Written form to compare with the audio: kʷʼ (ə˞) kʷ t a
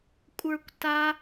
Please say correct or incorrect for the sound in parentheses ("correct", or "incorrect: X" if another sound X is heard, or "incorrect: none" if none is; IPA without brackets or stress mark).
correct